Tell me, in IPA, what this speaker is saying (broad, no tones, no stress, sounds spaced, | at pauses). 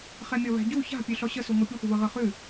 χ ɛ mʲ ɔ β æ̤ ɟ u ç a̤ pʲ ʉ ɬ ɔ ɕ ə s u ŋʷ ɤ pʲ ə xʷ ə β ɤ ʁ ɤ χ ʉ